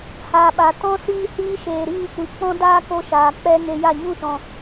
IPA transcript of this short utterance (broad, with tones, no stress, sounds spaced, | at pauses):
h aː˨ ɓ a˨ t ɔ̃˦ s iː˦ h iː˦ ʃ eː˨ ɾ iː˦˨ kʷ i˨ k͡p ɔ̃˦ d aː˦ k o˧ ʃ aː˨ k͡p ɛ˧ ŋ e˧ j a˦˨ ɲ ũ˦˨ ʃ ɔ̃˨